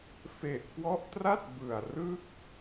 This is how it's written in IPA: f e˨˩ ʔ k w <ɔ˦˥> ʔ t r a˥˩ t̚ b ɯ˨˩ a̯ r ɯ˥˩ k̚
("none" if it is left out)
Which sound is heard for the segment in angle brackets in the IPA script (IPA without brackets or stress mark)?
ɔ˦˥